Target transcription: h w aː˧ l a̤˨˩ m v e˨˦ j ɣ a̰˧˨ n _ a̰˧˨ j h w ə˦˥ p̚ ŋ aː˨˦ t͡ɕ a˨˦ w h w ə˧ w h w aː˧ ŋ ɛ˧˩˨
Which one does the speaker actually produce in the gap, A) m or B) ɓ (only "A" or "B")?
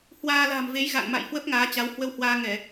A